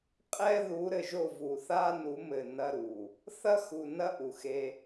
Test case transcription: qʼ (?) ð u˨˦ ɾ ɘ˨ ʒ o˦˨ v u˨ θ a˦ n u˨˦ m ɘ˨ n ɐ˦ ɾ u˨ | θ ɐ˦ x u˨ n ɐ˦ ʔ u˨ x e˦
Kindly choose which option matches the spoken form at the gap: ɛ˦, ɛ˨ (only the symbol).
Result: ɛ˦